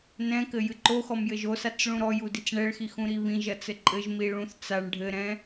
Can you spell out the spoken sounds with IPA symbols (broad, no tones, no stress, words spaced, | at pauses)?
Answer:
nɛ̃kɘ jɨǃoxɔm jɘʒosat͡s ɭũɾɔju dit͡sɳɛɭxi xũɾiβĩʒɐ t͡sɘǃʼɘʒmi ɭũθ t͡saɳ ɖʱɘɾɛ̃